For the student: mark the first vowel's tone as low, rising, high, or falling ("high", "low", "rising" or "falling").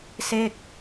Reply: falling